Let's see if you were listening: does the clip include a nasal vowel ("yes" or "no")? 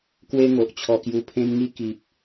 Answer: yes